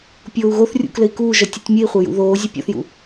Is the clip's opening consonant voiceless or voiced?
voiceless